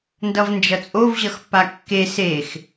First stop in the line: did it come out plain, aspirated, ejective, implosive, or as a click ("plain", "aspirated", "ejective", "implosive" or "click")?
plain